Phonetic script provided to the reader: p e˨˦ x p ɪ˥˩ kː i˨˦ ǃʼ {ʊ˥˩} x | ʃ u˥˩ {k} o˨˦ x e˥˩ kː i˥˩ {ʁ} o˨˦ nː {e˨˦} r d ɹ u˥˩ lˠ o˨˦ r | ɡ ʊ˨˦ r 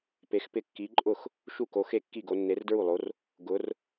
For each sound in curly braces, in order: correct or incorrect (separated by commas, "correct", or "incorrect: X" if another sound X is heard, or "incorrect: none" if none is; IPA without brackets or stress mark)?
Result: correct, correct, incorrect: ɡ, correct